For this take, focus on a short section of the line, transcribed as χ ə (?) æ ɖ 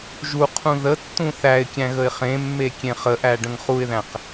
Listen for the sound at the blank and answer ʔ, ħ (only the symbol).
ʔ